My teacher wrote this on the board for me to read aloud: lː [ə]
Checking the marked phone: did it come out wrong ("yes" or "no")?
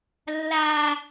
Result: yes